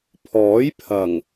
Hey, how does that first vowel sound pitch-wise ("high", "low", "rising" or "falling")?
rising